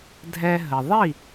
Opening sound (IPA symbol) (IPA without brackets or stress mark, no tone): dʱ